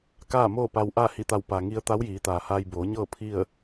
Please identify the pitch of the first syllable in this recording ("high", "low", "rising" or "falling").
falling